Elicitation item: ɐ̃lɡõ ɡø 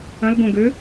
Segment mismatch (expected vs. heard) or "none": none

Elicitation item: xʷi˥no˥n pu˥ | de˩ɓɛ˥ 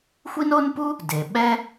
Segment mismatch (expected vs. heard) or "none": none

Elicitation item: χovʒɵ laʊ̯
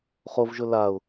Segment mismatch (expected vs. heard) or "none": none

